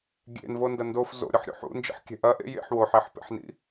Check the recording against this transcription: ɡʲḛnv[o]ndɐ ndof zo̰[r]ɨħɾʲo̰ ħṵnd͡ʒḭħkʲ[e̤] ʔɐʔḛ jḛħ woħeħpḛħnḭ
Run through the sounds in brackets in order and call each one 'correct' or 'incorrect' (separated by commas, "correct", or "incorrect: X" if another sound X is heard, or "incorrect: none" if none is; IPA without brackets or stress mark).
correct, incorrect: ɾʲ, correct